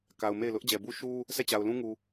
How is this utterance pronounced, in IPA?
k a˨ ʊ̯ m e˦˨ ɪ̯ l ʊ˦ ʔ d͡ʑ ɛ˨ b u˦ ʃ u˦ | s ɛ˦˨ t͡ɕ a˨ ʊ̯ l ũ˦ ŋ u˨

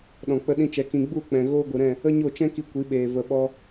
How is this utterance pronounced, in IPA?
ɗ ɔ̃˨ k͡p ə˧ ɗ ĩ˧ t͡ʃ ɛ˧ k ĩ˧ ɡ͡b u˦˨ k͡p ɛ̃˨ ɣ oː˦ ɡʷ ɨ˨ ɾ ɛ̃˦˨ | ə˦ ɲ o˦˨ t͡ʃ ɛ̃˦ k i˧ kʷ i˨˦ ɓ eː˨ v ə˨ ɓ ɔ˧

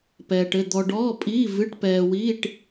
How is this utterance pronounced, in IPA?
p ɛː˧ ʈ ɘ˧˥˧ d̪ ɔ˧ ɖ ɔː˧˥˧ pʼ iː˧˥˧ v ɨ˧˥˧ ʈ p ɛː˧ w iː˧˥˧ ʈ

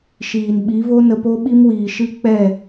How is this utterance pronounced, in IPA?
ʃ iː˨ n ɓ i˨˦ v o˦ n ə˧ p o˦ ɓ i˦ m w iː˨ ʃ ɨ˦ k͡p ɛ˦˨

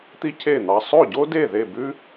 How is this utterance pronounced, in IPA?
t̪ i˥ cʰ e˥˩ n̪ ɑ˧ sˤ o˥˩ ɟ o˥ d e˥˩ ð e˥˩ b ʉ˥

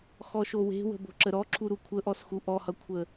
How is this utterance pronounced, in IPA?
x ɔ ʃ o w e̤ w ə̤ b o̤ ǁ ə ɾ ɔ ǁʰ u ɾ u kʷʰ ə ʔ ɔ s x u ʔ ɔ h ʌ kʷʰ ə

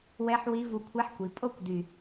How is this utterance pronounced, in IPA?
w ɛ˦˥ ħ w i˦˥ v u˧ kʷʰ ɛ˦˥ ħ kʷ i˩˧ pʼ o˥˧ kʷ d y˨˩

